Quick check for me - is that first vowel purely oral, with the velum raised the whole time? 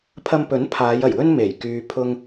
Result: yes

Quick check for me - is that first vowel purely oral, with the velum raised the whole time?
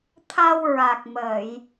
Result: yes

